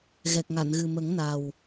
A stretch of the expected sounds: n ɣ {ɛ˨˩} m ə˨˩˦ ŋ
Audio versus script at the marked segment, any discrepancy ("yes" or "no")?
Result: yes